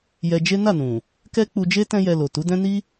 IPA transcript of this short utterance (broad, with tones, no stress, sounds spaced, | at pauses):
j ɛ˧ d͡ʒ e˦ n a˦˨ n ũ˨ | k ɛ˦ k͡p u˧ d͡ʒ e˦ t ɛ̃˦ j ɛ˧ l o˨ t u˨˦ d ɛ̃˦ n i˦